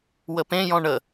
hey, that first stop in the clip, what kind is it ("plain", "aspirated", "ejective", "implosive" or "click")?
plain